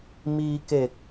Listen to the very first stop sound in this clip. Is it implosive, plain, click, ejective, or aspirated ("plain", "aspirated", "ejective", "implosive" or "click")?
plain